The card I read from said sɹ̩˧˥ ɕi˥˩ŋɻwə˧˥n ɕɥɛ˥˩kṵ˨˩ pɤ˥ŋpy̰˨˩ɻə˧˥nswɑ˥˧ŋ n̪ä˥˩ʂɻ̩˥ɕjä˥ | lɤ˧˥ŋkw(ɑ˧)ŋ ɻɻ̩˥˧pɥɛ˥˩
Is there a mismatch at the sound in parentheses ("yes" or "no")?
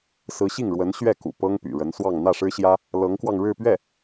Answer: no